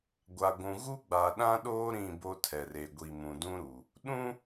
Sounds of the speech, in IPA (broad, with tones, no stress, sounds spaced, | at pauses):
ɡʷ a˨ ɡʷ ũ˨ ɣ u˦ ɡ͡b a˨ ɗ ã˦ ɗ oː˦ ɾ ĩ˦˨ b o˦ tʰ ɛ˨ r e˨ ɡʷ i˨ m ũ˨ d ũ˦ ɾ u˨ | ɗ ũ˦